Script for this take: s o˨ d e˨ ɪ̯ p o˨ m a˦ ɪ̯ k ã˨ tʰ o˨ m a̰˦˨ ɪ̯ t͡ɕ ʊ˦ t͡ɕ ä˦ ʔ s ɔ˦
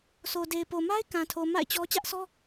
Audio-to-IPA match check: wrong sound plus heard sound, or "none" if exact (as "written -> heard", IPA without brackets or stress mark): ʊ˦ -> ɔ˦